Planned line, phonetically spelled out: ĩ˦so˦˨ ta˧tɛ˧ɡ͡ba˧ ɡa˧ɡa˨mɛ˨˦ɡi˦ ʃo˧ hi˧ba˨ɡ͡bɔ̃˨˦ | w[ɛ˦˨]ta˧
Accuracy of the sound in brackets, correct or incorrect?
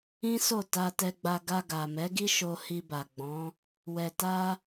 incorrect